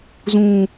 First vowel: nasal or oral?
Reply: nasal